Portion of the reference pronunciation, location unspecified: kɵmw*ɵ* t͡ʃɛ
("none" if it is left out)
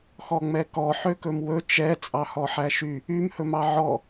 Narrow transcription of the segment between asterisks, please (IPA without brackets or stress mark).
ɵ